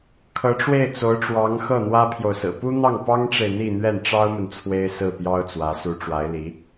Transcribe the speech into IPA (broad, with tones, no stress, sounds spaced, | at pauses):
kʰ ɤ˧˥ ʈ͡ʂ w e˥˩ ɪ̯ t͡s o˧˥ ʊ̯ ʈ͡ʂ w ɑ˧˥ ŋ x ɤ˥˩ n̪ w ä˥ pʰ j o˨ ʊ̯ s ɹ̩˨˩ p u˥ n̪ ɑ˥˩ ŋ p ɑ˥ ŋ ʈ͡ʂ e˨ ɪ̯ n̪ i˥˧ n̪ ɥ ɛ˥˩ n ʈ͡ʂ ɑ˥ ʊ̯ m ə˨ n t͡sʰ w e˥ ɪ̯ s ɹ̩˥˩ p j ɑ˥ ʊ̯ t͡s w ä˧˥ s u˧˥ ʈ͡ʂ w a˧˥ ɪ̯ l i˧˥